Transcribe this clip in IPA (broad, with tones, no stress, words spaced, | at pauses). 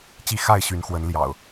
t͡ɕi˥˨ xa˥˨ɪ̯ɕy˨˦nxwə˨˦n ljɑ̰˨˩ʊ̯